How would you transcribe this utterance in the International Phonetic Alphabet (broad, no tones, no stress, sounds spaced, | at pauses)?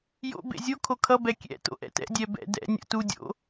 j o̰ b ḛ zʲ o kʰ o kʰ ʌ b ɛ kʲ ɛ̰ t o̰ ʔ ɛ̰ t ɛ̰ dʲ ɛ b ɛ̰ d ɛ̰ nʲ o̰ t u dʲ o̰